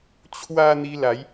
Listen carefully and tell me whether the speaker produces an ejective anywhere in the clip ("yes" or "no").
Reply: no